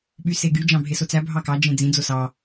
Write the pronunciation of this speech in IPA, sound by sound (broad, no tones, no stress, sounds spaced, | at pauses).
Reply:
ɓ y s e ɡ y d͡ʒ ɑ̃ bʱ e s o t͡s æ bʱ ɑ k ɑ d͡ʒ ẽ d͡z ĩ d͡z o s ɑ